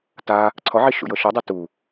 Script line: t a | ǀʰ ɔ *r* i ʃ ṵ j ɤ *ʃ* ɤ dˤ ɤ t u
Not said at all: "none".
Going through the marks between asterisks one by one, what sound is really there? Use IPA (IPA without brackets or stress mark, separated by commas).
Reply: ʕ, ʃ